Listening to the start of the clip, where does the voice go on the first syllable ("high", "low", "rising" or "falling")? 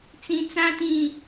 low